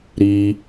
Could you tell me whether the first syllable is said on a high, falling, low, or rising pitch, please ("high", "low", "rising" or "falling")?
high